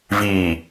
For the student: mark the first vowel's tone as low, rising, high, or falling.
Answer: low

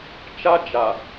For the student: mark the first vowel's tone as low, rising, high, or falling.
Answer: high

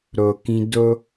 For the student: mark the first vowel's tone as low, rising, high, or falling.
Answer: low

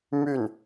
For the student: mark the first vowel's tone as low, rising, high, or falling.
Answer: falling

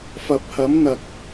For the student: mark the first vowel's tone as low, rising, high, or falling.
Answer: rising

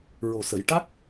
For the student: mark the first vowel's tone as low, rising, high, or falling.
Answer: low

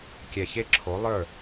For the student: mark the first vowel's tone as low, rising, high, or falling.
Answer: low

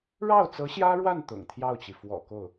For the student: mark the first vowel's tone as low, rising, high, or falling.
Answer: falling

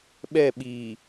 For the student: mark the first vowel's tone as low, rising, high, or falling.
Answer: falling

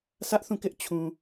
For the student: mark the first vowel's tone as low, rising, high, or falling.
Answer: high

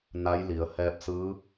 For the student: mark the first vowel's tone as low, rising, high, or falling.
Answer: rising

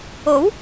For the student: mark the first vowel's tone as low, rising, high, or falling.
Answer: rising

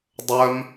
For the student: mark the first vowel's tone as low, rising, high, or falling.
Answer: high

